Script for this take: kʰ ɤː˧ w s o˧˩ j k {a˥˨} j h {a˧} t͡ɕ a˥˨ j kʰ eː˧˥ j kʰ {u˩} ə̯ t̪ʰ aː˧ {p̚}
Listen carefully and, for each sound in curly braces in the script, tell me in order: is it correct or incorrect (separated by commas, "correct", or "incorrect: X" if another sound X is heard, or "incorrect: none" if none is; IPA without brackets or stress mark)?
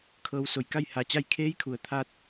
correct, correct, correct, incorrect: t̚